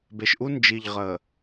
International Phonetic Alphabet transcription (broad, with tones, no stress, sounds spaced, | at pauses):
b e˨ ʃ ʔ u˦ n d͡ʒ i˨ ʎ ʁ ə˨